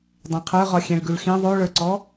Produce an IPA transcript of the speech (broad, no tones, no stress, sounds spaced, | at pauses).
dˤ ẽ qʰ ə˞ ʁ ɒ xʲ ẽ ɭ ɡ ʉ ɭ x ĩ ðˤ o ɭ ə˞ ǀ ɔ